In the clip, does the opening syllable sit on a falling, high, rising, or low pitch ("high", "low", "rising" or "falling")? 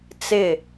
falling